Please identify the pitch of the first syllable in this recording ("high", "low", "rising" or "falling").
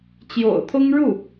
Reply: low